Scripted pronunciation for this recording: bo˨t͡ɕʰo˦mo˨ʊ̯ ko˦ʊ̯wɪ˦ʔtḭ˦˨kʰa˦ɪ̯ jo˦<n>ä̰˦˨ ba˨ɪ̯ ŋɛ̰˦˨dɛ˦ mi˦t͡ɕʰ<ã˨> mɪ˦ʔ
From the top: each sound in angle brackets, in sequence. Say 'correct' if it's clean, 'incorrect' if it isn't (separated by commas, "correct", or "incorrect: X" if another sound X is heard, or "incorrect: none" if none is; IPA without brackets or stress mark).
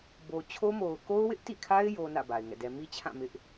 correct, incorrect: ã˦˨